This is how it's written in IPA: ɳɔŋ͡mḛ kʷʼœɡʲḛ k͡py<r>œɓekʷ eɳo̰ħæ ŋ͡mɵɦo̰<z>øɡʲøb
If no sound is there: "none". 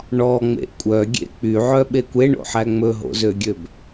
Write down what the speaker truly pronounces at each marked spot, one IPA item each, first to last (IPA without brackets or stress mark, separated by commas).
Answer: ʕ, z